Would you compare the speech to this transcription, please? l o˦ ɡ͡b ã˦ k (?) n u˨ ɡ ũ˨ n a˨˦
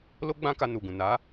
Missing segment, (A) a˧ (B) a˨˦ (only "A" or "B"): A